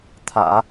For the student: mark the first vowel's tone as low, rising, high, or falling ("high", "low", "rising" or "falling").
low